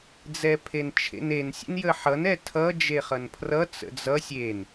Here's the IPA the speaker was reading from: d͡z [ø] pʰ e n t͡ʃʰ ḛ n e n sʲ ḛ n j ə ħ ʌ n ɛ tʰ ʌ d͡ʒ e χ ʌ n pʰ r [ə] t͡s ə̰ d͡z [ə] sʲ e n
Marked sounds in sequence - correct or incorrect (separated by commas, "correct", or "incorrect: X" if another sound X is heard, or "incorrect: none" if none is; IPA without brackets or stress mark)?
incorrect: ɛ, incorrect: ʌ, incorrect: ʌ